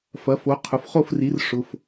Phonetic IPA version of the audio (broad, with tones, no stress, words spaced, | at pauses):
fɐ˩˥fo˩˥qʰʊ˩˧˩f χo˥˩fri˩˥r ʂʊ˩˧˩f